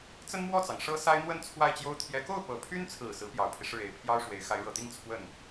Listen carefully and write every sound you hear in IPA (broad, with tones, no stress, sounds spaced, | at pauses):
t͡s ə˥ n m w ɔ˥˩ t͡s ɑ˩ ŋ ʂ ɤ˥ s a˥ ɪ̯ n̪ w ə˥˧ n t͡sʰ w a˥˩ ɪ̯ t͡ɕ j o˥ ʊ̯ t̪ʰ j ɛ˧˥ k o˥˩ ʊ̯ p ɤ˨˩ pʰ y˥ n t͡sʰ ɹ̩˨˩ s ɹ̩˧˥ p j ɑ˨˩ ʊ̯ pʰ i˦ ʂ ɻ̩˥˩ e˧˥ ɪ̯ pʰ j ɑ˥ ʊ̯ ʂ w e˧˥ ɪ̯ x a˧˥ ɪ̯ ɻ ɤ˨˩ t̪ i˥˧ ŋ t͡sʰ w ə˥˩ n